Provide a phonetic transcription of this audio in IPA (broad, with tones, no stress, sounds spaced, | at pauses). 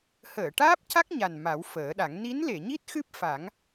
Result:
h əː˨˩˨ ʈ aː˦˥ p̚ c a˦˥ k̚ ɲ a˨˩ n m a˨˩˦ w f əː˨˩˦ ɗ a˨˩˦ ŋ n i˧˥ n l e˨˩˨ ɲ i˦˥ t̚ x ɨ˦˥ p̚ f a˨˩˦ ŋ